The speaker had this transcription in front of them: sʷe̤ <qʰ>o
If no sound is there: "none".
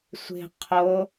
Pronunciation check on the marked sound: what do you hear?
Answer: qʰ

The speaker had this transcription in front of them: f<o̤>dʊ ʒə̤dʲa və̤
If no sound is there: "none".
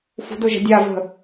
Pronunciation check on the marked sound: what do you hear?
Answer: ṳ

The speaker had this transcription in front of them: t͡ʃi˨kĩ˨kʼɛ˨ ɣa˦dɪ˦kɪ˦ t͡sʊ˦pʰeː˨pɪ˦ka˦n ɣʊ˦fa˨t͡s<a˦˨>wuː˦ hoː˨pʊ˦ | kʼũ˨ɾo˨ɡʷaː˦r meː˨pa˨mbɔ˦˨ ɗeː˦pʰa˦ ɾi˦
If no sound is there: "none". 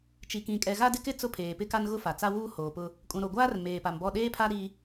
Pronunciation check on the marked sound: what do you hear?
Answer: a˦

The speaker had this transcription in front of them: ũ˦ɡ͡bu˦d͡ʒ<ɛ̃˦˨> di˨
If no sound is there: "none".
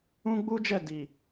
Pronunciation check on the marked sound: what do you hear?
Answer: ɛ˦˨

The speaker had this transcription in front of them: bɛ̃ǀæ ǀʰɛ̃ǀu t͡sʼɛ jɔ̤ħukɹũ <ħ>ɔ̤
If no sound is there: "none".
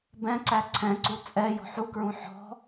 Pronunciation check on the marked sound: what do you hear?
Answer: ħ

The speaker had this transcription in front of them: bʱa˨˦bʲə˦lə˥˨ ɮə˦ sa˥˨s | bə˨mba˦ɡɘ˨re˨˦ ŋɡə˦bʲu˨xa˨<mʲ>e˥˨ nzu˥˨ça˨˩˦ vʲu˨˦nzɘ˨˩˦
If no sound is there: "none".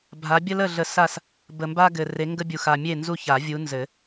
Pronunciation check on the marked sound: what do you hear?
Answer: mʲ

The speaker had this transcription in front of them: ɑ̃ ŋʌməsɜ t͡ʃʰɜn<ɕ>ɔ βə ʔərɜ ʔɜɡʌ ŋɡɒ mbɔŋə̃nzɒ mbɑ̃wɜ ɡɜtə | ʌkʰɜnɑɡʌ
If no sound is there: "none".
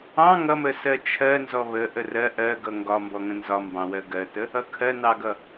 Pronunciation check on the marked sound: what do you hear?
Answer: z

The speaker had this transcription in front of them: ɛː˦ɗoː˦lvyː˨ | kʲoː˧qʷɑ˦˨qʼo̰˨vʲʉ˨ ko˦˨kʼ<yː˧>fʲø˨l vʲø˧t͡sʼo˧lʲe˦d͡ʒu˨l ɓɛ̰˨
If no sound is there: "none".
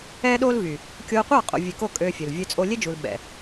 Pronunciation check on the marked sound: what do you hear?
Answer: øː˧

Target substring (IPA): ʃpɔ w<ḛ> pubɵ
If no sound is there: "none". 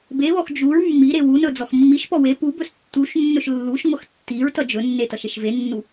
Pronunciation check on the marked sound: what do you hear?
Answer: e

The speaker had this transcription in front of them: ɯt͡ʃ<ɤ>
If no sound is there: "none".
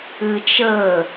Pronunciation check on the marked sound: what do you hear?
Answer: ɤ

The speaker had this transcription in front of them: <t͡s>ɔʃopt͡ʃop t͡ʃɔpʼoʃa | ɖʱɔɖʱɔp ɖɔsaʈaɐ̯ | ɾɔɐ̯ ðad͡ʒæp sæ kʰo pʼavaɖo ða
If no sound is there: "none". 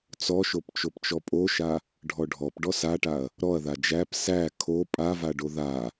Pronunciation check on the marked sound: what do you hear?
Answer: t͡s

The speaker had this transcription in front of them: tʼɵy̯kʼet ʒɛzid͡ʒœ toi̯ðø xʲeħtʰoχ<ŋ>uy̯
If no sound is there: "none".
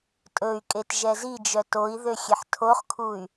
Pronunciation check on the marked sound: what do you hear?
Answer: kʰ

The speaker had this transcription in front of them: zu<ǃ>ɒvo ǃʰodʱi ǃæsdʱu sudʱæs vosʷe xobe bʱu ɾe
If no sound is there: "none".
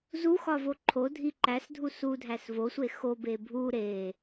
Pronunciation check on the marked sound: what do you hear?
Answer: x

